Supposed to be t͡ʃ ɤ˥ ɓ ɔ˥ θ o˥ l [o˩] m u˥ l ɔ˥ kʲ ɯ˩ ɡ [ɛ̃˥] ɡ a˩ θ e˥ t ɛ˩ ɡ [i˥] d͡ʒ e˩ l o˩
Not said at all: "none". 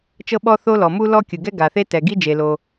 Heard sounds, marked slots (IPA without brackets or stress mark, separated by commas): ɔ˩, ɛ˥, i˥